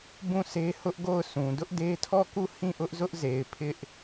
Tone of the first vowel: falling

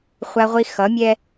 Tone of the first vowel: high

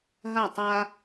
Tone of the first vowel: falling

